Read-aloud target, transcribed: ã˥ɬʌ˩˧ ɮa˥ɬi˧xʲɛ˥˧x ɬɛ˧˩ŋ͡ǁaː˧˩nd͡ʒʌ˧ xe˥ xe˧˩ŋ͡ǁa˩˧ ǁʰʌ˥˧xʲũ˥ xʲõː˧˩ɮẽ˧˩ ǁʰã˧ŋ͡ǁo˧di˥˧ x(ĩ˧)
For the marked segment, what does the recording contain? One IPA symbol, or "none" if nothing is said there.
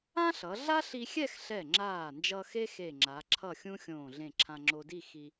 i˧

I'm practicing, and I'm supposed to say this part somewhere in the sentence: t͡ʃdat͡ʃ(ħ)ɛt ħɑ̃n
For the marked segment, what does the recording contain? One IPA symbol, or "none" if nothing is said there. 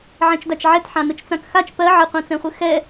ʕ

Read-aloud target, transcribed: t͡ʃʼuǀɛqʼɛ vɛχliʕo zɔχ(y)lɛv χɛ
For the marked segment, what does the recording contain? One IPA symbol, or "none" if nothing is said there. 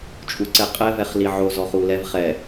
u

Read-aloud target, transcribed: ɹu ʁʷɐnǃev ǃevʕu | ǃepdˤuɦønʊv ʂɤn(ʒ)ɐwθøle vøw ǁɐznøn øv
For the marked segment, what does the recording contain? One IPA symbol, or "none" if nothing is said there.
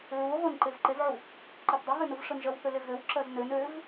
ʒ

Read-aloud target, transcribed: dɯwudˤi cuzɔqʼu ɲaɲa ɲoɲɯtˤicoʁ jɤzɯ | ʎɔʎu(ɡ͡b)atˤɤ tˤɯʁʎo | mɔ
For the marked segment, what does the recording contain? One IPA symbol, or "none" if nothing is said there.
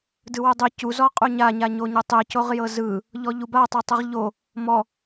b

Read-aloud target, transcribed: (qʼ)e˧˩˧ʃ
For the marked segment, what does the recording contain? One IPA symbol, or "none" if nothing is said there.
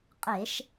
qʼ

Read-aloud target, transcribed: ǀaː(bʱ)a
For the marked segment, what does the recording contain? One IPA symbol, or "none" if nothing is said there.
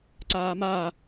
m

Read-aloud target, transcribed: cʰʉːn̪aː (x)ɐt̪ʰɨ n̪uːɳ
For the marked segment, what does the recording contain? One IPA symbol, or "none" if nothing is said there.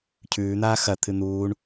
x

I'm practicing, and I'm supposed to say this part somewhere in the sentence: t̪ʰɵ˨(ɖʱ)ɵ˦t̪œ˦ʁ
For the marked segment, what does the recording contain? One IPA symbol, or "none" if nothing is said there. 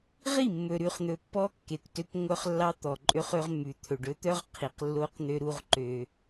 ɖ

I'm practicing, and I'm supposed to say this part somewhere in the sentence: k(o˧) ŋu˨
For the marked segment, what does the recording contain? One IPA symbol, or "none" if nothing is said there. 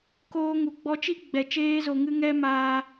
oː˧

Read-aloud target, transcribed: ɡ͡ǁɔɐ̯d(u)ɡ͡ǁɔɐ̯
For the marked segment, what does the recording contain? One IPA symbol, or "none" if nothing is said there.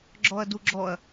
u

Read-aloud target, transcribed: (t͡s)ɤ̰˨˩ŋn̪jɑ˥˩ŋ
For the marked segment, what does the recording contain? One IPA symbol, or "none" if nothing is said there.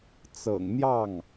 t͡s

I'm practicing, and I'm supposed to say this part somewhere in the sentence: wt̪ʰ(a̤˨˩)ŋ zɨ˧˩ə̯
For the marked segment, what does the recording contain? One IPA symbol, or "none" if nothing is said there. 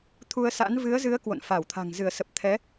a̤˨˩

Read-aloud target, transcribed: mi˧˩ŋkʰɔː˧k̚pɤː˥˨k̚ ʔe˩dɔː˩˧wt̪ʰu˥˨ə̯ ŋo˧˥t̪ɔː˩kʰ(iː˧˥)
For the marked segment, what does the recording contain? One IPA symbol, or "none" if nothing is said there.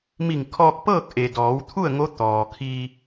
iː˧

